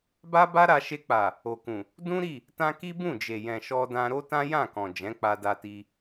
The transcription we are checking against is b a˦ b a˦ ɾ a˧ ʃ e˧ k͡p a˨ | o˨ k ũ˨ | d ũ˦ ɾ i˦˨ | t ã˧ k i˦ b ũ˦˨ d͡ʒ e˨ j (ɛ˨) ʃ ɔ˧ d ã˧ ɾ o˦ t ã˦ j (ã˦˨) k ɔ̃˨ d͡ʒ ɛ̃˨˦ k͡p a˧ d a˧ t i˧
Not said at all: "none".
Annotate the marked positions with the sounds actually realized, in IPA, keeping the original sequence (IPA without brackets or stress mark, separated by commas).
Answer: ɛ̃˨, ã˦˨